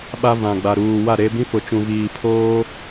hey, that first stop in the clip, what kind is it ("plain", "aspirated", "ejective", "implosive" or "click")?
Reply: implosive